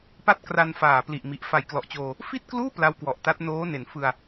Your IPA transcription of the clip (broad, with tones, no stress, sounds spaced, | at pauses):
p a˥˩ t̚ k r a˧ n f aː˨˩ p l i˨˩ ʔ m i˨˩ ʔ f a˨˩ j k l ɔ˨˩ ʔ t͡ɕ oː˧ | f i˥˩ t̚ k l uː˥˩ p l a˦˥ w k w ɔ˨˩ ʔ t a˦˥ t̚ n oː˦˥ n e˩˦ n f ɯ˧ a̯